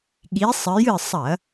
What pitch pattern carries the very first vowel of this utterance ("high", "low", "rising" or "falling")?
rising